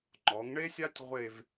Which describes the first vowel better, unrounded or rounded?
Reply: rounded